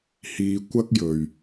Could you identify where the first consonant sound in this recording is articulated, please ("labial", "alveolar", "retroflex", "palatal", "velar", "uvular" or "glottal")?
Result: glottal